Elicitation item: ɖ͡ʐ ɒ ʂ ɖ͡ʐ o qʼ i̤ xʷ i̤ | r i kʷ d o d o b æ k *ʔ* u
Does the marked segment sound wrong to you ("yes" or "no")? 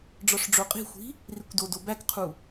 yes